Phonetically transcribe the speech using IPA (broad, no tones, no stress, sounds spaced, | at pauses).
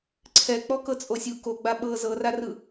ǀʰ ɛ k͡p ɔ k ɤ t͡sʼ o sʲ u k o ɡ͡b a ɓ ɤ z ɤ r a r ɯ